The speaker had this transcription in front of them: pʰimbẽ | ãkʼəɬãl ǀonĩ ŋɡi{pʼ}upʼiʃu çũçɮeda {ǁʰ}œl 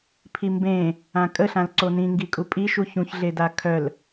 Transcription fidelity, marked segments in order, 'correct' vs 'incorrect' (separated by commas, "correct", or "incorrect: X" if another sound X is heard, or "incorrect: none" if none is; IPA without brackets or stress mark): incorrect: kʼ, incorrect: kʰ